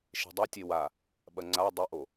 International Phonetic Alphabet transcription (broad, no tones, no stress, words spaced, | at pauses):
ʃe̤dˤɐtʲe wa | ɓɐŋ͡ǀa dˤɘʔo